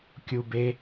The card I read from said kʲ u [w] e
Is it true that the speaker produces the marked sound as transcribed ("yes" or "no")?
no